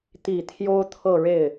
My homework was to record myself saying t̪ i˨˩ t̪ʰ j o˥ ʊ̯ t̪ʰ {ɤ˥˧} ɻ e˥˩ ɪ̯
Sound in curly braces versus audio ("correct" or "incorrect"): correct